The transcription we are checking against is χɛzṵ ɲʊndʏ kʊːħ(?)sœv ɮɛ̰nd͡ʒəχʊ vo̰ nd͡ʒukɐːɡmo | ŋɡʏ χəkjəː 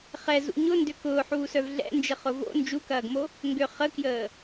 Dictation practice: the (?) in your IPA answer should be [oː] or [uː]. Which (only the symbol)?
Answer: uː